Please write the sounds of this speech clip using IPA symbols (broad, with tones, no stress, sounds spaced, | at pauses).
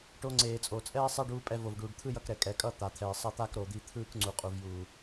ʈ o˧ ŋ͡ǀ eː˨ t͡sʼ o˨ t͡sʼ ɛː˦ sˤ ɛ˦ ɖ uː˧ pʼ ɛ˧ v o˨ v ɖ uː˨ ɖ t̪ʰ ɯ˦ j ʌ˧ k ɾ ɛ˨ kʼ ɛ˨ kʼ ʌ˦˨ t̪ a˨ t̪ʰ ɛː˨ sˤ ʌ˧ t̪ a˦ k ɾ o˨ d̪ i˧ t̪ʰ ɯː˦ k ŋ͡ǀ u˨ qʼ u˨ v j uː˨